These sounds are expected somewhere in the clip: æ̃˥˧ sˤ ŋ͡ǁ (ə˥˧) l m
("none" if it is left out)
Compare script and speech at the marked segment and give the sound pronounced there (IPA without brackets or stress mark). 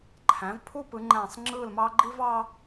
ɯ˥˧